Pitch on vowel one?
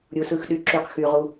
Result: low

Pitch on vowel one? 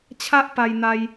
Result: high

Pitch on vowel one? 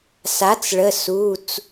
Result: rising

